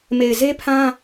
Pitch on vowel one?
low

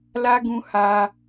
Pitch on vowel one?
high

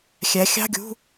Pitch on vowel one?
rising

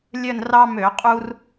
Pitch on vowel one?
falling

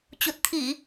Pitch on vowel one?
low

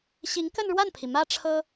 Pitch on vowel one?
rising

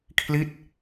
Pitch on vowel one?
falling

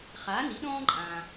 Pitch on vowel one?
rising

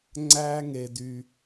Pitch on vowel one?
high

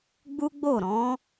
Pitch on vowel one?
high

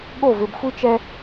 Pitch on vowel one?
falling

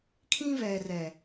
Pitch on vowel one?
high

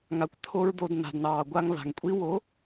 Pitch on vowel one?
low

